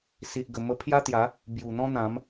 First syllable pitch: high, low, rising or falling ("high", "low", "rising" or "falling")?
low